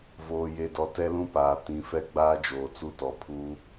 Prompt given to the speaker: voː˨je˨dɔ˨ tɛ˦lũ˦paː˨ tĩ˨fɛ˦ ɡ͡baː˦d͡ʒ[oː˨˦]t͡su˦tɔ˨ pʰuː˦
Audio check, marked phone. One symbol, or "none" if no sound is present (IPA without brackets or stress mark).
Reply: oː˨